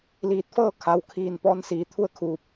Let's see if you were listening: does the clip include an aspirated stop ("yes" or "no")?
yes